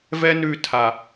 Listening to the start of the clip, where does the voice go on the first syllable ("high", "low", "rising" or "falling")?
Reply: high